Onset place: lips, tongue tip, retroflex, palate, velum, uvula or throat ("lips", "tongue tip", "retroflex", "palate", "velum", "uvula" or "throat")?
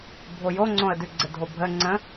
lips